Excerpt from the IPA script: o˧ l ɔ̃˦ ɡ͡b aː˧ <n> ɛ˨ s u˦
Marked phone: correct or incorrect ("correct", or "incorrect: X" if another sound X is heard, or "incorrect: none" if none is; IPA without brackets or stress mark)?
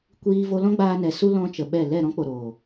correct